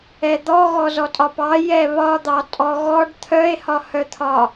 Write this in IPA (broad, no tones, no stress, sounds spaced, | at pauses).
ɛ d̪ ɔ ɣ ɔ z ɔ tʼ ɒ p ɑ j ɛ β ɒ d̪ ɑ tʼ ɔ ɣ ɔ ɖ t̪ʰ œ e̯ h ɒ h œ t̪ʰ ɒ